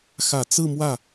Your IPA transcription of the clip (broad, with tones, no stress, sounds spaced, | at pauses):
x ä˨˩ t͡s ɹ̩˥˧ m w ä˥˩